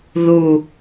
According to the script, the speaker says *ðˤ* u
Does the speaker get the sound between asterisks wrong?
yes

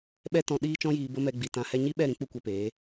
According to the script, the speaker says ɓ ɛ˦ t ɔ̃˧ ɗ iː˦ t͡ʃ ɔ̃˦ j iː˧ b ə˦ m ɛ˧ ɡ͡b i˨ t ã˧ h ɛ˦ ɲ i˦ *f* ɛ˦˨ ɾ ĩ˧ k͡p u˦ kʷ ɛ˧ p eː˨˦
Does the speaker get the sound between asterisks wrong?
yes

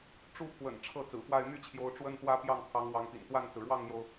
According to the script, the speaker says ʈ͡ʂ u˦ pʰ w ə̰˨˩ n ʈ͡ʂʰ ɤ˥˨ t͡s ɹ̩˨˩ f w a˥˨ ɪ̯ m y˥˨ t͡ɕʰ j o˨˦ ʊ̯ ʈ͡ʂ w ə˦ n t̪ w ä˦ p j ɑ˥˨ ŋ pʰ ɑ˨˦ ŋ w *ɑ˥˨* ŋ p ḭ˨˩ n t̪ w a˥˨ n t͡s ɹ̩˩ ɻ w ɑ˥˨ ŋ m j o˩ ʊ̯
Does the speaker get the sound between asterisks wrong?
yes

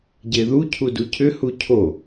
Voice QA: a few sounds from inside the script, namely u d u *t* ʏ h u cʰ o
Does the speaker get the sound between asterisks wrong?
yes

